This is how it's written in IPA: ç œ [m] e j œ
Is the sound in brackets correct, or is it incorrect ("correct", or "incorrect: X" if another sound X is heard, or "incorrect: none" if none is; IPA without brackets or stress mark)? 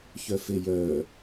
incorrect: f